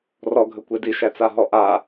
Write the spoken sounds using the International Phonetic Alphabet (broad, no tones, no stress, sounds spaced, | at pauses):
r ɔ ɡʱ ə kʷ e d i ʃ æ t͡s a ɦ ɔ ʔ a